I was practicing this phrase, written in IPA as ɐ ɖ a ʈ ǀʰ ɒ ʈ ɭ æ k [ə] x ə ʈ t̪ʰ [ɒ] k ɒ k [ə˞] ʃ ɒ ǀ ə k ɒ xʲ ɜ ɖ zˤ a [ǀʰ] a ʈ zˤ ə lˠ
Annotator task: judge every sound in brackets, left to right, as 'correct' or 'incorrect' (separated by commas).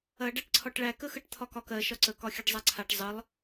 correct, correct, incorrect, correct